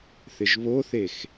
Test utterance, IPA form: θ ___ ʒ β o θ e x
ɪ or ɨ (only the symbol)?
ɪ